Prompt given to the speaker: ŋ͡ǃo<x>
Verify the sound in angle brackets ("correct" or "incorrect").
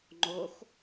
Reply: correct